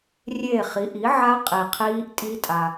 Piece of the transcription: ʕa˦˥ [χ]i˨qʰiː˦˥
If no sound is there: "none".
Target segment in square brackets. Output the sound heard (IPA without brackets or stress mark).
qʼ